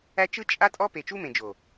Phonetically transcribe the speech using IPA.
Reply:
æ˦ t͡ʃ ɯ˦ t͡ʃʼ a˦ tʼ ɔ˦ p e˨ t͡ʃ u˦ m ẽ˨ d͡ʒ o˨

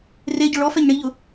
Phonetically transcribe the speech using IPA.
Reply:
r e ɟ ʊ ɭ ɔ f ɛ ɲ ɳ i ʎ ʊ

